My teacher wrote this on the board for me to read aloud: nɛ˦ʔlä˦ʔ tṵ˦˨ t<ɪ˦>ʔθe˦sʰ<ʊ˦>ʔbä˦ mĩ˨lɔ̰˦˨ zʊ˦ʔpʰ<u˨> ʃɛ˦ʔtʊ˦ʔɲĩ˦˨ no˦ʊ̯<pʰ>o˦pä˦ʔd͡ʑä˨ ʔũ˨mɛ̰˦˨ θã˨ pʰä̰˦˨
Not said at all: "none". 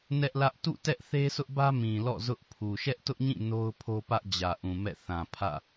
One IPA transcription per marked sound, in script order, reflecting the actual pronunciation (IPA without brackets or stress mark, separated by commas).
ɛ˦, ʊ˦, u˨, pʰ